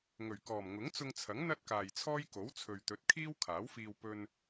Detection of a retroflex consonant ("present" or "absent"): absent